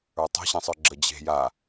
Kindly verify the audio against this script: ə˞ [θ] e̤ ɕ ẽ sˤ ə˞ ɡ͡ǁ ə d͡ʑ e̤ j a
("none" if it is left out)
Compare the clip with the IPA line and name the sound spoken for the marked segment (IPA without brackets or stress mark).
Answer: tˤ